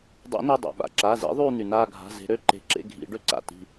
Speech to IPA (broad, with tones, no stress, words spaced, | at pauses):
dˤḛ˨˩˦ne˩˧˩dˤa̰˩ ɓa̰˩ǁa˩˧˩zḭ˩˥ ðˤyː˦˨n̪y˩naː˦˨ ɡʱa̤˩˧˩ ze̤˨˩˦ɾø˩˧˩ǃe̤˨˩˦ ǁḛ˦˨ɡʱḭ˨˩˦ɖø˦˨ǀa̰˩˧˩ ti̤˦˨